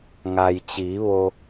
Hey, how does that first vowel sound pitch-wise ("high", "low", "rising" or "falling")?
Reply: low